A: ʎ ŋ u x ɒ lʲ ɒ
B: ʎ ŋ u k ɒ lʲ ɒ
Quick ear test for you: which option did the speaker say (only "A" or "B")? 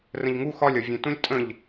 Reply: A